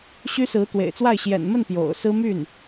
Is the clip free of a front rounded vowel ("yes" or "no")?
no